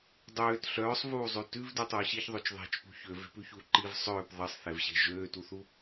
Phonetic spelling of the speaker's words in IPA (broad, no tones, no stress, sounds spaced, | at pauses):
dˤ øː t ɬ œː sˤ v uː zˤ ʉ t ʉ v d ʉ tˤ uː ɕ i ç ðˤ ø t͡ʃ ðˤ e̤ t͡ʃ p ṳ ç ø v e̤ p ʉ ç uː ǃ i v sˤ øː p ðˤ i sˤ θ e v ɕ e̤ ʒ øː t u θ u